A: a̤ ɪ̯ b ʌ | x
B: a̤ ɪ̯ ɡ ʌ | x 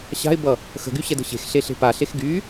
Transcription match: A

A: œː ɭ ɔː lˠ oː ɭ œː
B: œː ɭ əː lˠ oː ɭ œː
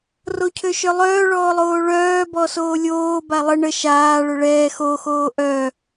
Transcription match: A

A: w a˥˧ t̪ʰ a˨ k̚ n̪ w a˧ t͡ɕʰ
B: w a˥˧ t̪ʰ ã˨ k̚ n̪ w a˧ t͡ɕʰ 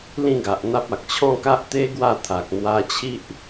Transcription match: A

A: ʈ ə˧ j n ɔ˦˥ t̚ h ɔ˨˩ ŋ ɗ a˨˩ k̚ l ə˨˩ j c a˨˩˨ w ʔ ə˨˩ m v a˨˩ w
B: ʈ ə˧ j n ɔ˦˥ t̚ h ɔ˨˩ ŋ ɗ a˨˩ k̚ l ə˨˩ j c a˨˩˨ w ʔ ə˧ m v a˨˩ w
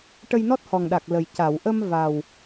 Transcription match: B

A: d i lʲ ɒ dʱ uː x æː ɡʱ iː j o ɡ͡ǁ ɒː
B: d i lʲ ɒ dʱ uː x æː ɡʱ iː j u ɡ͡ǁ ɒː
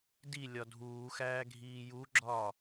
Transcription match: B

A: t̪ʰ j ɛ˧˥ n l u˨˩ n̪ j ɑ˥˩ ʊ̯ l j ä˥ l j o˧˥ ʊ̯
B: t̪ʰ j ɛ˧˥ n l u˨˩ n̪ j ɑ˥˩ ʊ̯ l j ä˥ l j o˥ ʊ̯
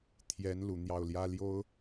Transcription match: B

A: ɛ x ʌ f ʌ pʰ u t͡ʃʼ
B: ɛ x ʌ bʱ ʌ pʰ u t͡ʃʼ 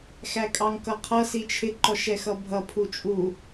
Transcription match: B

